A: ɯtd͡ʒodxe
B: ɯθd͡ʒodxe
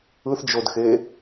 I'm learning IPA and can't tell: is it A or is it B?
B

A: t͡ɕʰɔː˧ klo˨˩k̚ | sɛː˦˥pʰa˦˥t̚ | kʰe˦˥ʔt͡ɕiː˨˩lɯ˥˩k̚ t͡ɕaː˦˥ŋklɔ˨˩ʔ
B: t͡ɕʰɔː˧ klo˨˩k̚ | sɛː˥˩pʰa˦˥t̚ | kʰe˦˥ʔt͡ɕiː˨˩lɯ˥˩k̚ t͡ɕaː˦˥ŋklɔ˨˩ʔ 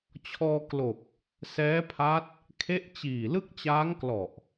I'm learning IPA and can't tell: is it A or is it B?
A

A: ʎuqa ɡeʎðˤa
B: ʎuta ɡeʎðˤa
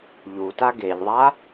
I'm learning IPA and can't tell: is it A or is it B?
B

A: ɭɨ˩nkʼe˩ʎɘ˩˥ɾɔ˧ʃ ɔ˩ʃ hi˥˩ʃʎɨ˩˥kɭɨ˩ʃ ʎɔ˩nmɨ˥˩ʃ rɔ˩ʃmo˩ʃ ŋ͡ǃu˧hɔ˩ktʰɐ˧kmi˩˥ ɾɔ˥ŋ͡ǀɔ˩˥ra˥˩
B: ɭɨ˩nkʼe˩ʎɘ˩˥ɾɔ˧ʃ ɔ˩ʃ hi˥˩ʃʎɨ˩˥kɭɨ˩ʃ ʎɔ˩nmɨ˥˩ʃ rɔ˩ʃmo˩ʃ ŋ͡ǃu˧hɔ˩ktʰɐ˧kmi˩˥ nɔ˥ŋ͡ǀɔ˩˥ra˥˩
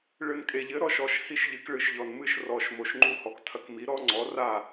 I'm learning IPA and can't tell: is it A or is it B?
A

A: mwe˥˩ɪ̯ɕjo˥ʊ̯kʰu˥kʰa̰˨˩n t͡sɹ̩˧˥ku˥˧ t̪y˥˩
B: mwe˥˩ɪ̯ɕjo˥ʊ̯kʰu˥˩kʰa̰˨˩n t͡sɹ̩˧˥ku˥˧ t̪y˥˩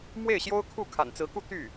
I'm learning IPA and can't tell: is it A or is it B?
B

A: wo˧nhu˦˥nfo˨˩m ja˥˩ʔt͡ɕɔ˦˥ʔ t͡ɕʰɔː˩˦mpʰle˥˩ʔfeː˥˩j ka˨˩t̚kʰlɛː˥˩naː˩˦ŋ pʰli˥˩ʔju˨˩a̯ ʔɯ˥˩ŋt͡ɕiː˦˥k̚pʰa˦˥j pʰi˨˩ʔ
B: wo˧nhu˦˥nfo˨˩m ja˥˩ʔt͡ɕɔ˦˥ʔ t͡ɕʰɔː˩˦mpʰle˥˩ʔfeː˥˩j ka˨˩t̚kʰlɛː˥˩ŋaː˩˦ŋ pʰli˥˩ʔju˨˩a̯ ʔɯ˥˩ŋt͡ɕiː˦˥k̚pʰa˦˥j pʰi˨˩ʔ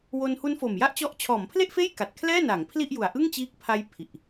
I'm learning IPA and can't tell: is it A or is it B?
A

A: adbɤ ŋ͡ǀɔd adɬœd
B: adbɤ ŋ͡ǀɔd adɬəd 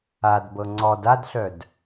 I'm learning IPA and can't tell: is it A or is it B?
A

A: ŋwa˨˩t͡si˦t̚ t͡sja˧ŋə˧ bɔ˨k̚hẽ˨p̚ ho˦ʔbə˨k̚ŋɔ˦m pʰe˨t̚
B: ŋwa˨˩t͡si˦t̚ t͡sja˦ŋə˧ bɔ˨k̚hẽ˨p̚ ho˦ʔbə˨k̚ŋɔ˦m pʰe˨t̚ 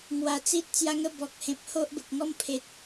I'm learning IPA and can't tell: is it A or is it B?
A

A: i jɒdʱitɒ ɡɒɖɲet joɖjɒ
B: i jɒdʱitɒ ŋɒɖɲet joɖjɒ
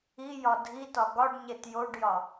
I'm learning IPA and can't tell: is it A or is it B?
A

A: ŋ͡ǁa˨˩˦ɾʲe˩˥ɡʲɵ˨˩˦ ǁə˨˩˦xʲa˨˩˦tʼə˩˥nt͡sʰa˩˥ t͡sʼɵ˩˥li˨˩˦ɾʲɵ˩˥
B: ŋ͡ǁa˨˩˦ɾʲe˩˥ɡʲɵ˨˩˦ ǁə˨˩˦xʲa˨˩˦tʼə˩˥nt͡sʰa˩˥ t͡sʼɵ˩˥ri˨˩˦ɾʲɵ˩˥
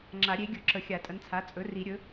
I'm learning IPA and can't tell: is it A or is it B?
B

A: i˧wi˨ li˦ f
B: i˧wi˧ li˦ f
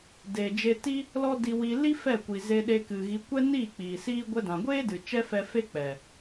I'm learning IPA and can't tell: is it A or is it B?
B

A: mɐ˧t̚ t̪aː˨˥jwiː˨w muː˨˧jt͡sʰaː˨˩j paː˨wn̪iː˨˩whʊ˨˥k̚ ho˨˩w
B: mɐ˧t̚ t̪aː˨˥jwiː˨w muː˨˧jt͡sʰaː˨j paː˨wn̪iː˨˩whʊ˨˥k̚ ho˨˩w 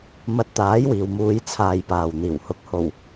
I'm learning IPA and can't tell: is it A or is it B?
B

